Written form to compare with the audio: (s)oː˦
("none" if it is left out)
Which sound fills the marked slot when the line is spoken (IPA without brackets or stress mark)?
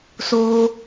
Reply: s